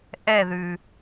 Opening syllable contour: falling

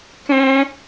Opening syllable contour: high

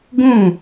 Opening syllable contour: falling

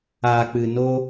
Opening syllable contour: low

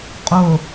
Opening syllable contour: low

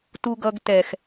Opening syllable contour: low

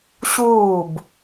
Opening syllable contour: falling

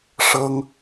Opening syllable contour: high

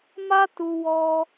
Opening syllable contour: high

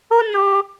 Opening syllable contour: high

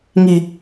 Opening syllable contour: low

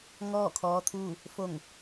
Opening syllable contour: falling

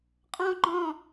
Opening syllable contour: high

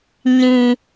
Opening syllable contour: high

